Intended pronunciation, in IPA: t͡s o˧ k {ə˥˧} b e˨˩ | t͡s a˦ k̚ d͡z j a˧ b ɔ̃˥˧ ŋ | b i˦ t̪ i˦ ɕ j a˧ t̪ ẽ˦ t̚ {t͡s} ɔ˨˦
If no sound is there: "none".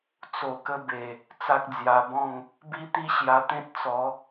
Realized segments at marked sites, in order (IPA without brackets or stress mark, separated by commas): ə˦, t͡s